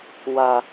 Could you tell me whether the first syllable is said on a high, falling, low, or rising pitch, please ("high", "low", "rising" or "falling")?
low